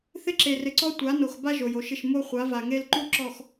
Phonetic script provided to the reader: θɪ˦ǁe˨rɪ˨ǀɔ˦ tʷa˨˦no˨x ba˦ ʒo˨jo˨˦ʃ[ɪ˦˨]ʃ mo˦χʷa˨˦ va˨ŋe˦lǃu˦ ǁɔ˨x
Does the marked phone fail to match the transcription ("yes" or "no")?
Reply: no